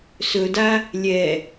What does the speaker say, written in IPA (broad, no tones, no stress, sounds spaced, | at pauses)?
s ɵ d a | lʲ ɛ